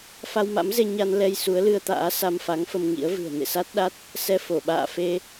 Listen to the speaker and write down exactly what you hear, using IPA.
f a˧ w m a̰˧˥ m z e˧ ɲ a˧ n l ɛ˧ j s u˨˦ ə̯ l ɨ˧ ə̯ t̪ a̰ː˧˥ s a˧ m f a˨˦ ŋ f ə˧ m ŋ ḭ˧˥ ə̯ v ɨ̤˨˩ ə̯ n ḛ˧˨ s a˦˥ t̚ ɗ a˦˥ t̚ | s ɛ˧ f o˧˩ ɓ a̰ː˧˨ f e˧

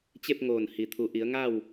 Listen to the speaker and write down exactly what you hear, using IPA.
t͡ɕ e˥˨ p̚ ŋ oː˧˩ n h i˩ t̪ʰ u˩ ʔ i˩˧ ə̯ ŋ a˥˨ w

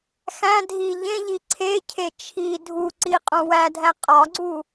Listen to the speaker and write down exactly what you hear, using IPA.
x æ̃ dʱ i ʎ ẽ ʎ i ǀʰ e cʰ e t͡ʃʰ i dʱ u ǀ i qʼ õ w æ dʱ æ qʼ ɒ ɡ͡ǀ u

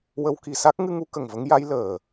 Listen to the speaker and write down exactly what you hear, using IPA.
w ə˧˥ w k i˨˩˨ s a˦˥ k̚ ŋ ɨ˧ ŋ u˧˥ k ə˨˩ ŋ v ə˧˥ ŋ j a˧˥ j l əː˨˩

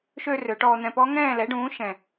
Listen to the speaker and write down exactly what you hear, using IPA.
ʃ ø˧ r ø˩˧ ʈ ɔː˧ n̪ ɛ̃˧ p ɔ˦˥ ŋ ɛ̃ː˥˨ l ɛ˩˥ ɖ ũː˩˥ ʃ ɛ̃˨˩

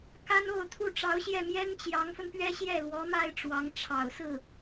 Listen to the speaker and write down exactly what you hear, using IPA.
k a˥ n o˥˧ ʊ̯ t̪ʰ u˥˩ ʈ͡ʂ ɑ˧˥ ʊ̯ ɕ j ɛ˥˩ m j ɛ˥ n t͡ɕ j ɑ˧˥ ŋ f ə˧ n p ɥ ɛ˥ ɕ j ɛ˥˩ l w ɔ˧˥ m a˥ ɪ̯ ʈ͡ʂ w ɑ˧˥ ŋ ʈ͡ʂʰ ɑ˨˩ ʊ̯ s ɹ̩˥˩

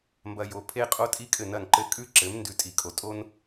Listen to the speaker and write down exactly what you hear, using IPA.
m b ɐ˧ j o˩˥ pʰ e˥ qʼ o˥ tʼ i˥ kʼ ɘ˥˩ n ɐ˥˩ n ǃ ɘ˥˩ kʼ ʉ˥ ǁ ɘ˩˥ m n d ʉ˩˥ tʼ i˩ kʼ o˩ tʼ o˥ n

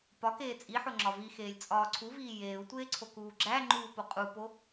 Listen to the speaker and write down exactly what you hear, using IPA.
p ɒ k eː t͡sʼ i ħ o ŋ͡ǁ ɒ v i x eː lʲ t͡sʼ ɒː ǀʰ u v iː j eː u̯ tʷ eː ǀʰ o k uː ɡ͡ǁ æ ŋ͡ǃ uː p o qʼ u p o

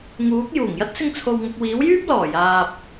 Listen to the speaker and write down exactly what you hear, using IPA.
ŋ uː˨˥ k̚ j uː˨˩ ŋ j ɐ˥ t̚ s ɪ˧ ŋ t͡sʰ o˨ w ŋ ʊ˨ k̚ w iː˨˥ w j yː˥ p̚ l ɔː˨˩ j aː˨ p̚

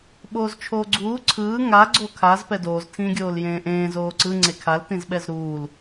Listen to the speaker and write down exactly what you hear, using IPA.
ɓ oː z t͡ʃʰ oː ɡ͡ǀ uː ǀʰ ɯː ŋ a ɡ͡ǀ o kʰ a z p ɛ d oː z tʰ ĩː ɡʲ oː l j ẽː ʔ ẽː z oː ǀ ɯ ŋ͡ǀ e kʰ a l t ĩ z ɓ ɛ z ɾ uː l

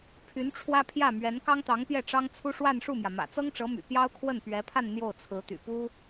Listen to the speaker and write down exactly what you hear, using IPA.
pʰ y˧˥ n ʈ͡ʂʰ w ä˥ pʰ j ä˥˩ m ɥ ɛ˧˥ n k ɑ˥ ŋ t̪ ɑ˧˥ ŋ p j ɛ˥˩ ʈ͡ʂ ɑ˥ ŋ t͡sʰ u˥ ʂ w a˥˧ n ʂ u˥˩ m j ä˩ m ä̰˨˩ t͡s ɤ˥ ŋ ʈ͡ʂ ɤ˧˥ m y̰˨˩ p j ɑ˥ ʊ̯ kʰ w ə˥˩ n p ɥ ɛ˧˥ pʰ a˥˧ n n̪ j o˥˩ ʊ̯ t͡sʰ ɹ̩˧˥ t̪ y̰˨˩ p u˥

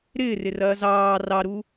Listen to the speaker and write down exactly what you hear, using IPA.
ɾ ɪː r ɪ r ɐː z ɑː r ɑ ɾ u

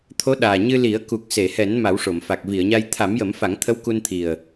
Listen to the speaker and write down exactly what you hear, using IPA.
t̪ʰ o˧˥ ɗ aː˨˩ ɲ ɨ˧ l i˨˩˦ ə̯ k u˨˩ k̚ s e˨˩˨ h ɛ˨˩˦ n m a˨˩˦ w ʂ o˨˩˨ m f a˨˩ k̚ v i˨˩˨ ə̯ ɲ a˧ j t̪ʰ a˨˩˦ m j ə˨˩˦ m f a˨˩˦ ŋ t̪ʰ ə˧˥ w k u˧ n t̪ʰ i˨˩ ə̯

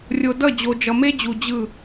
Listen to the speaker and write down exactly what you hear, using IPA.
rʲ o˨ d ʌ˦˨ d͡ʑ o˨ d͡ʒ ʌ˨ m e˦ d͡ʑ u˨ d͡ʑ ɯ˦˨

